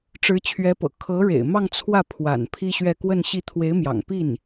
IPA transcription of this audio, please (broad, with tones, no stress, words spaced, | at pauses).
ʈ͡ʂɻ̩˧˥t͡ɕʰɥɛ˧˥pɤ̰˨˩ kʰɤ˧˥ɻḛ˨˩ɪ̯mɑ˥˧ŋ t͡sʰwä˥˩pʰwa̰˨˩n pʰi˥ɕɥɛ˥˧ kwə˥˧nɕi˥˩ t̪ʰwe˧˥ɪ̯mjɑ̰˨˩ŋpi˥˩n